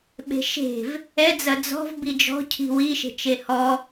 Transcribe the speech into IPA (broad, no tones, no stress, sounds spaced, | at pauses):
ɓ e̤ ʃ e̤ v | ɛ d͡z ɐ d͡z ɔ̤ v b i d͡ʒ ɔ̤ cʰ i̤ w i ʃ e̤ t͡ʃ e h ɔ